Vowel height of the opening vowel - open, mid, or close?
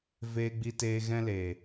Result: mid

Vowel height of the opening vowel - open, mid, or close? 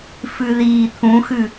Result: close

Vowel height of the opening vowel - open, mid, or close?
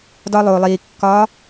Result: open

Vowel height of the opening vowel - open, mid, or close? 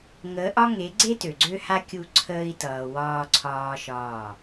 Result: mid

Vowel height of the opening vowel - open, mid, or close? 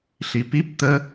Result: close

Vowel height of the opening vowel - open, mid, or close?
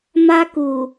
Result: open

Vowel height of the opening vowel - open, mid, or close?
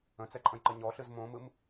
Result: mid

